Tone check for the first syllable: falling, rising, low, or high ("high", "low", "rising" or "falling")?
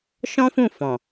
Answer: high